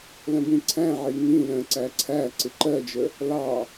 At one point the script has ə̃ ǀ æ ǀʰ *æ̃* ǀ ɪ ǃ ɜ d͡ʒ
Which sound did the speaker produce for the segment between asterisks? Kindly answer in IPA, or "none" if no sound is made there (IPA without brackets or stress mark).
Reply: æ